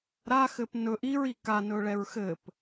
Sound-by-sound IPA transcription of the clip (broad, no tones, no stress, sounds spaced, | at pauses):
ɾ a x ɘ p n ɵ ʔ i ɹ i k a n ɵ ɭ ɛ ɹ x ɘ p